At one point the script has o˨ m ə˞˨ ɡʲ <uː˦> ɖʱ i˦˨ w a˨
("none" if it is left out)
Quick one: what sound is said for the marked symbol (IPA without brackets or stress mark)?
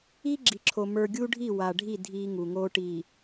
uː˦